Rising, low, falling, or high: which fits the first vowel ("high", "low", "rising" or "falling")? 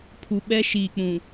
low